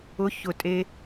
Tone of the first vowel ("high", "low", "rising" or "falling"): rising